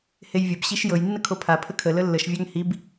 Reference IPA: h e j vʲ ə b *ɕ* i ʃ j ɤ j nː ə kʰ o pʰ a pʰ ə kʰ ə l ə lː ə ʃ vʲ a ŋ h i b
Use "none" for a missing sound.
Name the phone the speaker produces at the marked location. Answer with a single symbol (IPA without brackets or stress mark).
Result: ɕ